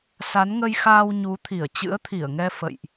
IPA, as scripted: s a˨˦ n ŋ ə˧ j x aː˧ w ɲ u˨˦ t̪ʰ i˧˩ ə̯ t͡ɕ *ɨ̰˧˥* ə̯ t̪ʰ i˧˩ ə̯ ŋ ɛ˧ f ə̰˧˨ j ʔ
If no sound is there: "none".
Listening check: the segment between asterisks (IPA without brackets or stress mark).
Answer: ɨ̰˧˥